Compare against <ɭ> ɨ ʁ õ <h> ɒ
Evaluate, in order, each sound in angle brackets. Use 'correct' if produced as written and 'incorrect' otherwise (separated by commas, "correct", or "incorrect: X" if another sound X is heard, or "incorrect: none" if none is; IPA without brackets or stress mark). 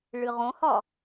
correct, correct